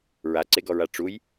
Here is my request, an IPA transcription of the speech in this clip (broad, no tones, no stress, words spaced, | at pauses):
ɹaǀeɡɔɹa ʈ͡ʂuj